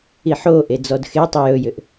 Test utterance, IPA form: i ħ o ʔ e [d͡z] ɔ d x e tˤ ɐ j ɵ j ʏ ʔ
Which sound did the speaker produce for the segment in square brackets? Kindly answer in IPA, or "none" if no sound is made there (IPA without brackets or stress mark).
d͡z